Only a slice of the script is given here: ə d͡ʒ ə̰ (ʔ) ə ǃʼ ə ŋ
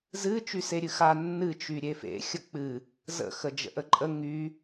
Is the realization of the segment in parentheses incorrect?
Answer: no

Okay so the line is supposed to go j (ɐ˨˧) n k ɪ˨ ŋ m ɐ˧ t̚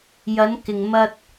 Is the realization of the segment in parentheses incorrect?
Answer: no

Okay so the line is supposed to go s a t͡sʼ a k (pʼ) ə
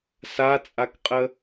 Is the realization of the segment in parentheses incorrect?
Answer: yes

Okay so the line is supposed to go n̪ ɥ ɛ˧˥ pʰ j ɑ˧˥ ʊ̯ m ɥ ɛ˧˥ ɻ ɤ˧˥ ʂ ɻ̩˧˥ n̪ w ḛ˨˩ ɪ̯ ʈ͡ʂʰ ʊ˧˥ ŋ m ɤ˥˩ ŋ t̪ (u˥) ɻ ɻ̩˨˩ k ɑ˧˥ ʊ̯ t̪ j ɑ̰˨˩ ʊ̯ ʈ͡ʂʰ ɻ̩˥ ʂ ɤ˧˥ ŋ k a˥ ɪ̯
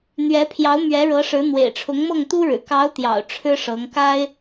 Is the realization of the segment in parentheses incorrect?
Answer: no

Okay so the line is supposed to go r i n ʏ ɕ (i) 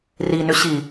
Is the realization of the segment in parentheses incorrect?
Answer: no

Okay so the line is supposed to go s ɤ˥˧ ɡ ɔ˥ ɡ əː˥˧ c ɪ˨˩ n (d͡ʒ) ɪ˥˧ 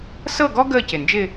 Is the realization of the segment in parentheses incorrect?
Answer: no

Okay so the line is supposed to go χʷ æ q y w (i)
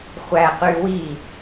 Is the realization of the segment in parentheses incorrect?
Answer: no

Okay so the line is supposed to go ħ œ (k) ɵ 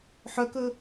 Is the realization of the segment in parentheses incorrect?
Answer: no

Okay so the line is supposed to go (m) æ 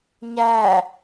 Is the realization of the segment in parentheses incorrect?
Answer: yes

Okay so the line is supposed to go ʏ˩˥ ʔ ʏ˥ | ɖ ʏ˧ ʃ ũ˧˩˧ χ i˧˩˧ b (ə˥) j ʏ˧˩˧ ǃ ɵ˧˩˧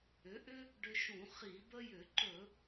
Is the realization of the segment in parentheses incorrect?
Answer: no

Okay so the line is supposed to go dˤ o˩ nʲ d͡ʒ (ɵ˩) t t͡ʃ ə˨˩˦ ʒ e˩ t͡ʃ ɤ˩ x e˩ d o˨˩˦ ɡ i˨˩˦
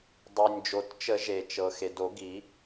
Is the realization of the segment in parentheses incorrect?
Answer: yes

